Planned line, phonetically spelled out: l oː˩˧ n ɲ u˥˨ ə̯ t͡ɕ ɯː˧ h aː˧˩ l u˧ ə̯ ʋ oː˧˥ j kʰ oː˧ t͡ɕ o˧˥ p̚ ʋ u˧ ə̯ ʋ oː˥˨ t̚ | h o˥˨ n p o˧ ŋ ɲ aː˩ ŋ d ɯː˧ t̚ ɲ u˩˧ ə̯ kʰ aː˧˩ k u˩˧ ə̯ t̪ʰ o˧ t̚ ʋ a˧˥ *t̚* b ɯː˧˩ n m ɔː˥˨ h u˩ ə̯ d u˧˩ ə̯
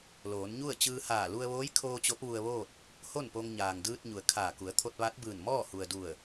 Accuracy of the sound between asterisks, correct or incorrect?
correct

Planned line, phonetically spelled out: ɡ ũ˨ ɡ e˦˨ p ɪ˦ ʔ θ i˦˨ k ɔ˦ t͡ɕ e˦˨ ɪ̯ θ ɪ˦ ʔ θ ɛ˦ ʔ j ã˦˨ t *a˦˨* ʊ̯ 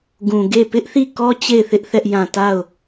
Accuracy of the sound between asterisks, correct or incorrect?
correct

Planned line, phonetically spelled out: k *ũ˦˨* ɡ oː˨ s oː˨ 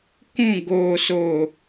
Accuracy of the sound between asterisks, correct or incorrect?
correct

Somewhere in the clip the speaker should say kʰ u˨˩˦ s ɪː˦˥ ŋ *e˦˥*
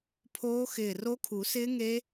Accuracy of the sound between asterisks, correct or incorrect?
correct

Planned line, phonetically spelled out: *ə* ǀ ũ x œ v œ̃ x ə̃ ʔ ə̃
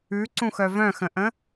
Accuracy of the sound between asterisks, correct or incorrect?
incorrect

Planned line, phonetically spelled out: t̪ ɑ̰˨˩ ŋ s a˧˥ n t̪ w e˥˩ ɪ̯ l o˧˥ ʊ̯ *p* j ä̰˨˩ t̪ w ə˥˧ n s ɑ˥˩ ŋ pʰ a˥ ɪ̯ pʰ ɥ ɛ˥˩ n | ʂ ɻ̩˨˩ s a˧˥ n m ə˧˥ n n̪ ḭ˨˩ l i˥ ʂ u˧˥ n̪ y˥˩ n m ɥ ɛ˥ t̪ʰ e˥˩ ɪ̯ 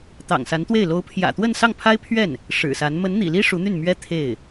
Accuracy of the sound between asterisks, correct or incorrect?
incorrect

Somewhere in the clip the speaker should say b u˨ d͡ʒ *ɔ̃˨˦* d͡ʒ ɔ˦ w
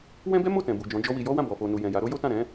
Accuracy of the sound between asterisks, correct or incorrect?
correct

